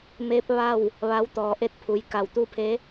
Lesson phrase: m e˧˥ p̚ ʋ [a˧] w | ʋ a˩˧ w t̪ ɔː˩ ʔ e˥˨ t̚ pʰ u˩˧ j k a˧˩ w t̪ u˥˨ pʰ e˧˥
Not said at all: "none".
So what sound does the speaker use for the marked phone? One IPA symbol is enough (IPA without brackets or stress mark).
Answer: a˥˨